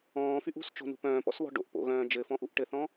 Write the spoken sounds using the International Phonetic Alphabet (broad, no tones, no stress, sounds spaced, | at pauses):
ɔ̃ː f y ʔ ṳ s t͡ʃ o̤ n ṳ p œ̃ː p ɔ̰ s β ɔ̤ ɖ o̰ ʔ p o̰ ɣ œ̃ː d͡ʒ ɘ f ɔ̃ ʔ u ʔ ʈ ɘ θ ɔ̃